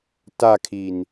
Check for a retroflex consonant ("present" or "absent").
absent